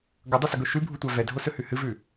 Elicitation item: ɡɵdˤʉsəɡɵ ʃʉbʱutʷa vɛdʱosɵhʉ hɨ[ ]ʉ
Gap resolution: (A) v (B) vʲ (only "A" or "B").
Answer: A